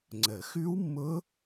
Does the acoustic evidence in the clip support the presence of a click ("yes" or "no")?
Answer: yes